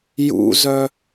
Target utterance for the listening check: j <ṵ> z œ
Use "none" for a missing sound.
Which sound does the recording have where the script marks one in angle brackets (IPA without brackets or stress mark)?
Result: ṵ